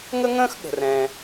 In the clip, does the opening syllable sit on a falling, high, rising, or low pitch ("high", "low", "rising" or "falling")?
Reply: high